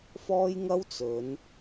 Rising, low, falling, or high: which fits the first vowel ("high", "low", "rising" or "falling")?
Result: high